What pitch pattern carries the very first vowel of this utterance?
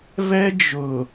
high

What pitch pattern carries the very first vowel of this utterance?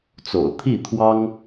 low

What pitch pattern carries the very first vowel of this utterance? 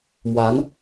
rising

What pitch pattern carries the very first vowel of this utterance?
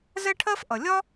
high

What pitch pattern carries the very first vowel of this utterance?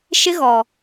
high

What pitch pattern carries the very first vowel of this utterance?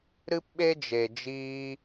high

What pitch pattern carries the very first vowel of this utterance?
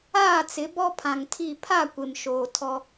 falling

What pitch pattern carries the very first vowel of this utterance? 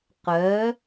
rising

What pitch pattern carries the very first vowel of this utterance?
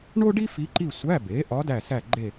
high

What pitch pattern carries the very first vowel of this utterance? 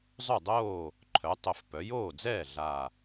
falling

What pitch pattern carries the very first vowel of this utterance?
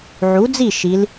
rising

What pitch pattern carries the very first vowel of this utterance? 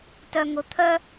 low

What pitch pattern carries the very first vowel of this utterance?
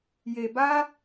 low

